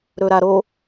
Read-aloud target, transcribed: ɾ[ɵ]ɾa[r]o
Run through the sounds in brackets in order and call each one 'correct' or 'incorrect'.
correct, incorrect

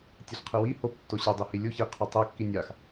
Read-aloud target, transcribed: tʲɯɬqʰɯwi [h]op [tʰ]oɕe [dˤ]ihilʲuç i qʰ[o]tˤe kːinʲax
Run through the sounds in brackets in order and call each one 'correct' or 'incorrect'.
correct, incorrect, correct, correct

